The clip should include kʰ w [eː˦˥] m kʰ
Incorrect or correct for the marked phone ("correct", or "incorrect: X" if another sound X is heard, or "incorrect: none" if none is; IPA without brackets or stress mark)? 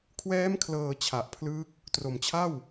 incorrect: ɛː˦˥